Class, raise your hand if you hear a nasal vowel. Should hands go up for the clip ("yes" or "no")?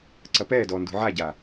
no